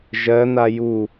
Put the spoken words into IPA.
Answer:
ʒɜn̪a ju

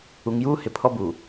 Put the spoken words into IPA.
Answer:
u˨ŋjuː˦ hɪ˨pʰɔ˦buː˨

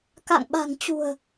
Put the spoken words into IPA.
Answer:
ka̰˧˨ŋɓa̤˨˩ŋt͡ɕṳ˨˩ə̯

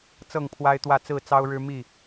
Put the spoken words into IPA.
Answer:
t͡sɤ˥˨ŋpʰwa˦ɪ̯t̪wä˥˨ t͡sɹ̩˥˨t͡sɑ˦ʊ̯ɻɻ̩˦ mi˥˨

